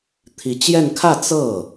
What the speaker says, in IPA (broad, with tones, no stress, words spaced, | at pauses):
t̪ʰi˧˥ t͡ɕjɛ˥˧n kʰä˥˧ t͡sɤ˥˩